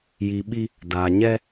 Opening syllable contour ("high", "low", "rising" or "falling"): low